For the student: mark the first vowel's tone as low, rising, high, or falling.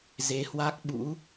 rising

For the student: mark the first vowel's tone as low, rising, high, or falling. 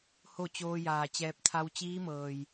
falling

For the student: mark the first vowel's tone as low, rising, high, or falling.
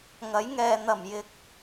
rising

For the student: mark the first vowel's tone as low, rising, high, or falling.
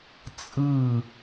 falling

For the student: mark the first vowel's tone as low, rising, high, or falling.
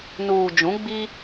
low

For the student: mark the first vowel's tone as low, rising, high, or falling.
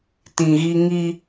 low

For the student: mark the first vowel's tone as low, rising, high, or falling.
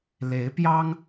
rising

